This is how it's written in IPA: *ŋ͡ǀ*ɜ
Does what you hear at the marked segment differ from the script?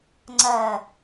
no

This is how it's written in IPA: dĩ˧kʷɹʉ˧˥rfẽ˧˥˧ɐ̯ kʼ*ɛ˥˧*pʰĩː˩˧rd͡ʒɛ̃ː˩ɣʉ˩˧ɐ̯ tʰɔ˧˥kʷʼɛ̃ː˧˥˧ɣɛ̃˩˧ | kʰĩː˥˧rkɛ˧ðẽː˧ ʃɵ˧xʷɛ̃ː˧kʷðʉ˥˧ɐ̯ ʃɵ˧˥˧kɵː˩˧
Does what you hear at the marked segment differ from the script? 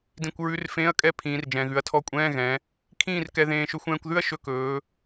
no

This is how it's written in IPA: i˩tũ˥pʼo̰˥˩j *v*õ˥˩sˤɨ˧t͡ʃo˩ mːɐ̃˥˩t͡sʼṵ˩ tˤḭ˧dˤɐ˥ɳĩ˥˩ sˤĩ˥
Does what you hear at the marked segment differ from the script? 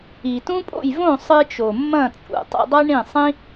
no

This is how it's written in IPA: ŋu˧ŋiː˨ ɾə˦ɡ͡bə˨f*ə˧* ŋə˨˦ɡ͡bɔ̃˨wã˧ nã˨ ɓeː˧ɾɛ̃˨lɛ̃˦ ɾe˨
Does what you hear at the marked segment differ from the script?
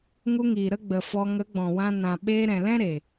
yes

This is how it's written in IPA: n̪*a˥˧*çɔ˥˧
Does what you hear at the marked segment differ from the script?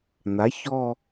yes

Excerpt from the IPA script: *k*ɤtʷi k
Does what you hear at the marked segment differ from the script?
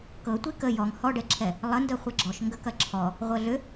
no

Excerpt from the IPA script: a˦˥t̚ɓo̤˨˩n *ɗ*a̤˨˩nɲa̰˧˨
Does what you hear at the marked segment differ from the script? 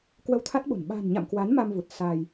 yes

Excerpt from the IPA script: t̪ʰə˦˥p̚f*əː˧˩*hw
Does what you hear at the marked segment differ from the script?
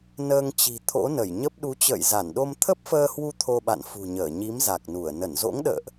yes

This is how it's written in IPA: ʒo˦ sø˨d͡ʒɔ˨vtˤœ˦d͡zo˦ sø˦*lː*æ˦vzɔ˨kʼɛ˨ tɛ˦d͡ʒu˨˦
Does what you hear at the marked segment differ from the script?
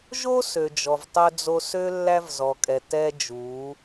no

